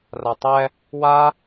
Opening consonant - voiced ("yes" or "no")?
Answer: yes